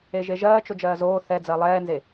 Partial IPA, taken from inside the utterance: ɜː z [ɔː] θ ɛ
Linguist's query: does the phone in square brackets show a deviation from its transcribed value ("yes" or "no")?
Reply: yes